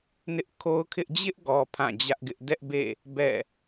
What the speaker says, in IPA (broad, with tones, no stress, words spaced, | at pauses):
nɪ˦ʔkʰo˦ʊ̯kʰɪ˦ʔ d͡ʑɪ˦ʔɡɔ˨ pʰã˦˨d͡ʑä˦ʔɡɪ˦ʔ dɛ˦ʔbḛ˦˨ | bɛ̰˦˨